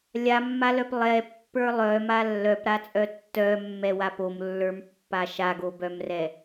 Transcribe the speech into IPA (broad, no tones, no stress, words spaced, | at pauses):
lʲamːalœp lˠɛpːə˞ lˠœma lːœpɾat͡sʼœ tːœmːɛwa pomlːə˞mpːa ʃaɡobœmrɛ